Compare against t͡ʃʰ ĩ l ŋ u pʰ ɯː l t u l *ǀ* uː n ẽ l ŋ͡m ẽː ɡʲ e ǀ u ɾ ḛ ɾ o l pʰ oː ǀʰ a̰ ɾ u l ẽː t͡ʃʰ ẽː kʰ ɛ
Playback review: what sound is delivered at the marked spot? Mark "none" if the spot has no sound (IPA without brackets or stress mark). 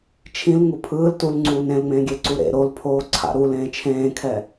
ŋ͡ǀ